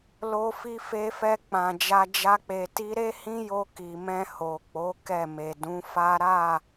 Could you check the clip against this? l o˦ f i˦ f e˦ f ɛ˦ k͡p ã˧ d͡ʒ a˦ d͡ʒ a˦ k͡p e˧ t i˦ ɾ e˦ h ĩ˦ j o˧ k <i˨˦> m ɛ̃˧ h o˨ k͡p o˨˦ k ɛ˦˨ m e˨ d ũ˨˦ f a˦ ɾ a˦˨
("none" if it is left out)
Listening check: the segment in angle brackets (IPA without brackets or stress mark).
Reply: i˨